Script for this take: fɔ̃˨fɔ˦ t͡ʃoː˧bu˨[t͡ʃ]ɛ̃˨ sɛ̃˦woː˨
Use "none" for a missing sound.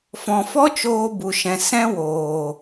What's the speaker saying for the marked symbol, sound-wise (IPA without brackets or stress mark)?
ʃ